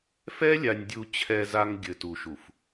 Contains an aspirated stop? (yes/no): yes